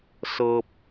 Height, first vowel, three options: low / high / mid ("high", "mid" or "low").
mid